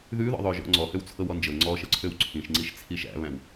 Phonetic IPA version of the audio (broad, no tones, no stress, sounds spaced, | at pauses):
ð ʉ ð ɔ̰ ðˤ ø ʒ ɔ̰ ŋ͡ǀ ɔ h ø w t͡sʰ ɤ w ɔ n d͡ʒ ɤ ŋ͡ǀ ɔ ʃ ɤ ǀʰ ø w ǀʰ ĩ ʃ ŋ͡ǀ i ʃ t͡sʰ i ʃ æ̰ β æ̃ w